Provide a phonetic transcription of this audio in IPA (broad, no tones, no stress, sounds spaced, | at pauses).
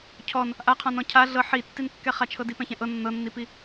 cʰ ɔ n | ʔ a qʰ ɔ̃ n ɔ̃ cʰ a ɮ ɤ ħ i tː i n kː ɛ χ a t͡ʃʰ ɤ d i p ɛ̃ ç ɛ̃ ʔ ɤ nː ɤ nː i p i